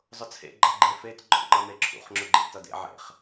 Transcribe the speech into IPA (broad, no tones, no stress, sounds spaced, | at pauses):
zˤ ʊ t͡sʰ ḛ ɡ͡ǃ ʌ ɡ͡ǃ e f e t ɡ͡ǃ ɔ̰ ŋ͡ǃ ʌ m e ǁʰ ṵ χ ŋ͡ǁ ʊ ɡ͡ǃ ḛ t ʌ d ḛ ʕ ḛ χ